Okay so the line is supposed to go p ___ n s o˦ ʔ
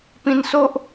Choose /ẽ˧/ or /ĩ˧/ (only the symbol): ĩ˧